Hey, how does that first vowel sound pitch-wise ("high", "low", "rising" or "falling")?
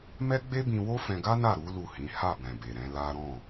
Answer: high